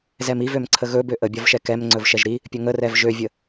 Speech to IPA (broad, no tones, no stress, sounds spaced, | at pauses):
z ɛ m i v ø m ǀʰ ə ɣ ɵ b ø ʔ ə bʲ ɒ v ʃ ɛ k ɛ m ŋ͡ǀ ɵ v ʃ ɛ ʒ ɾ i | pʲ ɵ ŋ ə r ɛ v ʒ ø vʲ ə